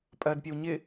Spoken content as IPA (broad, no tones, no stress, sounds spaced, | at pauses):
pʼ ɜ d pʲ ɛ w ɲ ɪ